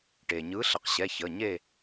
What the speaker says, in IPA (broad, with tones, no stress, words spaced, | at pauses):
ʈeː˩ɲɯː˨˥ ɬə˩˧qɕɛ˩˧˩ çəː˩˧˩ ɲe˦˨